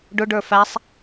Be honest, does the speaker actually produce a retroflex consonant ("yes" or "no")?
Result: yes